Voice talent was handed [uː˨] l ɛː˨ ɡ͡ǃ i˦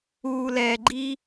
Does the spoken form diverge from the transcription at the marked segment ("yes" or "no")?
no